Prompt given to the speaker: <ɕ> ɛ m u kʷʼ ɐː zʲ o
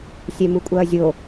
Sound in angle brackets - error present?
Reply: yes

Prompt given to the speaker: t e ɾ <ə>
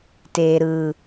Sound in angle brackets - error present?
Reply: yes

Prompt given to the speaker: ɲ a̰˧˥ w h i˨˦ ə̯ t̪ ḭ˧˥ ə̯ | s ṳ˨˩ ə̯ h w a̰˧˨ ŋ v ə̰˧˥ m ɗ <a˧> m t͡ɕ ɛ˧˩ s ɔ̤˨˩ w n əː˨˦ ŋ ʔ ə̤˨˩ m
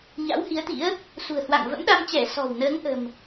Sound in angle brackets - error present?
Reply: no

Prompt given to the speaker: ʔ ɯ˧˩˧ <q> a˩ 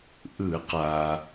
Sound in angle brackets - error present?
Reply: no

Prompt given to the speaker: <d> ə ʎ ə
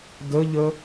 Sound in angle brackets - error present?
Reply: no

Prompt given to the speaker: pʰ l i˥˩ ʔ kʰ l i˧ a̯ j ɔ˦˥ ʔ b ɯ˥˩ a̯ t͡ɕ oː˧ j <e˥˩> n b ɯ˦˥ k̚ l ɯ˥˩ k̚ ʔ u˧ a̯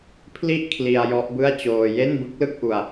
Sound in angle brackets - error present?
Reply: no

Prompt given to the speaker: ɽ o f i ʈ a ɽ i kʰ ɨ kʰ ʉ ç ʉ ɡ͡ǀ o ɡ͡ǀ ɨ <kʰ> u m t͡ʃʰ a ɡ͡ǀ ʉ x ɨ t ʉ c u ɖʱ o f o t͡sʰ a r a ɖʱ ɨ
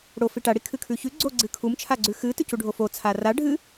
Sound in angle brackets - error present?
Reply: no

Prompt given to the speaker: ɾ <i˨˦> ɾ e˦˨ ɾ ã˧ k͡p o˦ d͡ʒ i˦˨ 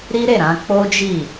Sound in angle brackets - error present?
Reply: yes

